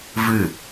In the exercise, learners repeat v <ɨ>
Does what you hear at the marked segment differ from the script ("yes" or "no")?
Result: no